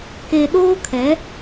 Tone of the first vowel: low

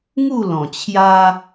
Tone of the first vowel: falling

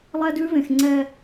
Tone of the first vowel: high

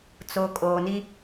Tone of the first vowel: low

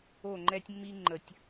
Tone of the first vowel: falling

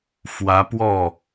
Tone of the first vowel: rising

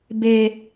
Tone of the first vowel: high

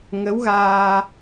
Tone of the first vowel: rising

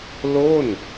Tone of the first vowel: falling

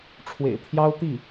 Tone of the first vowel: low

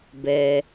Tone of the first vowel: low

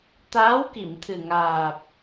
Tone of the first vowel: rising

